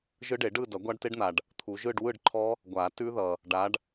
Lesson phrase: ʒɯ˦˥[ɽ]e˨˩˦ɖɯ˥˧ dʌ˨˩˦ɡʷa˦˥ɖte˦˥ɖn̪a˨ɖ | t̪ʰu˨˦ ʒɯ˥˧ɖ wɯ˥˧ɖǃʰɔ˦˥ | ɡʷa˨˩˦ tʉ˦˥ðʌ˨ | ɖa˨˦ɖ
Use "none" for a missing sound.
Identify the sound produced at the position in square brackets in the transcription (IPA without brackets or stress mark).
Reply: ɖ